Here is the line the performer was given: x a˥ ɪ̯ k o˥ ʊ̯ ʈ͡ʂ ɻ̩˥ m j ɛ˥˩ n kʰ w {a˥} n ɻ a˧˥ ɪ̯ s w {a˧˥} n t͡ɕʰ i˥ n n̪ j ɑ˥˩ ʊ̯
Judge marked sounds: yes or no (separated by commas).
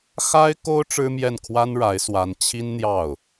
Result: yes, yes